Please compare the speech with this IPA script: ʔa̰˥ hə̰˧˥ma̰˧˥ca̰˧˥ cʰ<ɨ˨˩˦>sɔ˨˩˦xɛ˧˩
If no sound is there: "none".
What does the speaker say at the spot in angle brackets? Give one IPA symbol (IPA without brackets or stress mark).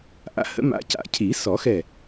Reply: i˨˩˦